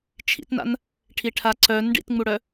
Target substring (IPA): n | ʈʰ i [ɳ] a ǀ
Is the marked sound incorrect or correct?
incorrect: ʈʰ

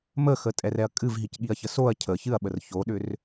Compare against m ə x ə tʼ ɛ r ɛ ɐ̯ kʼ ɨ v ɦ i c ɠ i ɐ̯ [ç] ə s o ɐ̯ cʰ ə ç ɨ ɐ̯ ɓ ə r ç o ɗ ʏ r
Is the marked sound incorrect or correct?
correct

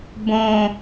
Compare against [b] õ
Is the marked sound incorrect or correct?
correct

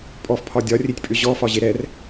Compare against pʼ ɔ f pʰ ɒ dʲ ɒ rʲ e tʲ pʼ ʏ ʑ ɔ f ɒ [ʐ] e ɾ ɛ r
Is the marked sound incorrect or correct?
incorrect: ʑ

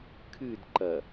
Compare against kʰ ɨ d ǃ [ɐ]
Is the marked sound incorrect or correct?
correct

